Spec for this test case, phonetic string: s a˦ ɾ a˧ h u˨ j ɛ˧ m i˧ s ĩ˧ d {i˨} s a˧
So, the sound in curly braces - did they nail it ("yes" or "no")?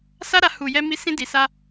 yes